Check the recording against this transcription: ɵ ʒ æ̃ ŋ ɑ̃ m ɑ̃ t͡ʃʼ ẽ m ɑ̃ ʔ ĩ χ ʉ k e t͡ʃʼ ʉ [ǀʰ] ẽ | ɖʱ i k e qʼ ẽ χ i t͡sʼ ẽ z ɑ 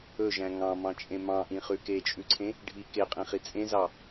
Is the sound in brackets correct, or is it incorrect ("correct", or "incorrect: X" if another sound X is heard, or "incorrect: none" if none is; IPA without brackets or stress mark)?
correct